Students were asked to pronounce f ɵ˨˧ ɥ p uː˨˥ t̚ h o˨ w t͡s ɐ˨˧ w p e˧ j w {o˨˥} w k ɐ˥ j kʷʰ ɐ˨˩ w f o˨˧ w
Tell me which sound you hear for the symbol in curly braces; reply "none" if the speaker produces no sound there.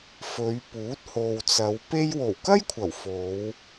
o˨˩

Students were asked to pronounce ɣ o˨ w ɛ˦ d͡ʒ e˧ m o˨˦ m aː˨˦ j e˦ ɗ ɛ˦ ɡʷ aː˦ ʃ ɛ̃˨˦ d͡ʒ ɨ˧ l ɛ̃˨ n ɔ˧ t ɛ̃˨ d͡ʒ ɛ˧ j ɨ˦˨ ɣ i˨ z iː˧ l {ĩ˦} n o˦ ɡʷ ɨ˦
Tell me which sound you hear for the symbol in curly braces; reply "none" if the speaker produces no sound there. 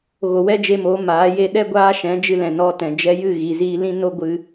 ĩ˦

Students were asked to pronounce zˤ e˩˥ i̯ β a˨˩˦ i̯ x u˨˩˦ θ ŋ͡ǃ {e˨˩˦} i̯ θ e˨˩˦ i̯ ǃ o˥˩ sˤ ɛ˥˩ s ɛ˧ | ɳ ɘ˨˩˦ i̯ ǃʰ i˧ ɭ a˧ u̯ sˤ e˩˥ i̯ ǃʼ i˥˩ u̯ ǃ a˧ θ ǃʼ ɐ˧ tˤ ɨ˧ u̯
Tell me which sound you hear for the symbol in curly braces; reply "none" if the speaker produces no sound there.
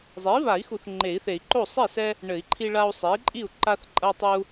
e˨˩˦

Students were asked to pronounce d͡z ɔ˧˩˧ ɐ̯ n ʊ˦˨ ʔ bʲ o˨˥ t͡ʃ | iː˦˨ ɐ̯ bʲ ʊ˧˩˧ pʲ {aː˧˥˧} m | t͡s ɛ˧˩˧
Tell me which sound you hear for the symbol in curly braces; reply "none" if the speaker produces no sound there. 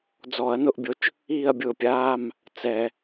aː˧˥˧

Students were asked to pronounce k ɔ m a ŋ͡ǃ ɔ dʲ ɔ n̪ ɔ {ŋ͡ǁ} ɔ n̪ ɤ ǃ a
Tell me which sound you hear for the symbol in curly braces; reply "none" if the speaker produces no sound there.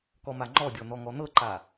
ŋ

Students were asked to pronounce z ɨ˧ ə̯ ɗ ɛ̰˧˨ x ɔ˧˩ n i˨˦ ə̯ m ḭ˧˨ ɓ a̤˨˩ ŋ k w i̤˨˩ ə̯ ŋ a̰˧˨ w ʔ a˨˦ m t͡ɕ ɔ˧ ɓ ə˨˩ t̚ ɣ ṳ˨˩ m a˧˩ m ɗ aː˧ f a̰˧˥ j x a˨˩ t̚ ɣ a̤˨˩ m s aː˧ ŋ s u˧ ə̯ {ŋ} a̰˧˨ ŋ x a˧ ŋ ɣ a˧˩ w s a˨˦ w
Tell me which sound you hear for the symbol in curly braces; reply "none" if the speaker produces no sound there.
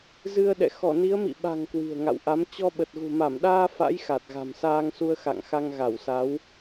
x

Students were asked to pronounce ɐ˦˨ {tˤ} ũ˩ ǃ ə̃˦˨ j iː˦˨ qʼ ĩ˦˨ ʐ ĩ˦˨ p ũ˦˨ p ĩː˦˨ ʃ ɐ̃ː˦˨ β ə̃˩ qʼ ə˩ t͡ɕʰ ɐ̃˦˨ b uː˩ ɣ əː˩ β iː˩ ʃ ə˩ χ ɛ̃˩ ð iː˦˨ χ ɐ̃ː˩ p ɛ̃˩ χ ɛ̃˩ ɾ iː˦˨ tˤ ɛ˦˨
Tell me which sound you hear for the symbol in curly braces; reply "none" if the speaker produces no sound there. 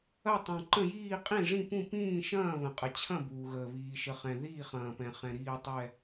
tˤ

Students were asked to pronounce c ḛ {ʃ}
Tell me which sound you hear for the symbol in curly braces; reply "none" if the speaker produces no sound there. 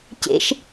ʃ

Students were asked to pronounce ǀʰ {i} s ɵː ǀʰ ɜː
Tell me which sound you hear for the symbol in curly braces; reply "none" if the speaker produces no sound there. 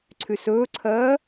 y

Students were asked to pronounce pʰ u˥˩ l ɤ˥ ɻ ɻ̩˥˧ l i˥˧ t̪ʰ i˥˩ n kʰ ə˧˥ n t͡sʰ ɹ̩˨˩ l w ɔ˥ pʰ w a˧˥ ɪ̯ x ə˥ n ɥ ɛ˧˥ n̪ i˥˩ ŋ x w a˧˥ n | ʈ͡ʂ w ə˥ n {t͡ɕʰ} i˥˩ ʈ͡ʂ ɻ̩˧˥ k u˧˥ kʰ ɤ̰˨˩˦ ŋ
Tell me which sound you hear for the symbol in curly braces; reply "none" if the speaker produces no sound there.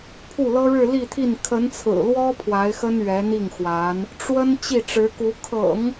t͡ɕ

